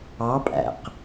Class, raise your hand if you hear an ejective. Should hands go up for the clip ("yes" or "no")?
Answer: yes